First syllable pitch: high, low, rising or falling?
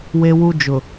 high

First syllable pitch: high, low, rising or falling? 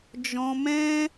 high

